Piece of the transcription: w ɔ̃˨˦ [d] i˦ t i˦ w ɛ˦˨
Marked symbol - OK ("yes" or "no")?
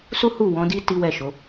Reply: yes